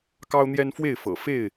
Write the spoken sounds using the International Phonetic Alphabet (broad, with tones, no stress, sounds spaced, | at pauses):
k ɑ˦ ʊ̯ n̪ j ɛ˦ n f w e˥˨ ɪ̯ f ɤ̰˨˩ f e˥˨ ɪ̯